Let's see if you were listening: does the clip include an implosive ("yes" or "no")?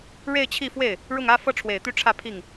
no